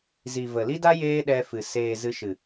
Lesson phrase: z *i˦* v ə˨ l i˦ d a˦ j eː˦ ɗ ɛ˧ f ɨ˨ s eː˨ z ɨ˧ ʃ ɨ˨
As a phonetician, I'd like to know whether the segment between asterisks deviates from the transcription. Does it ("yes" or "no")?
yes